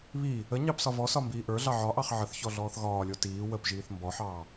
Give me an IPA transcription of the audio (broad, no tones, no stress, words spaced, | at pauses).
βi | ə ɲɑpsɒvɔsɒ mbiːʔə˞ɮɑ ʕɒʔɑχ ʕəθçɔ ɮɔːθɣɒːlʲo tiː wəpʒiːθ mbɔħɑː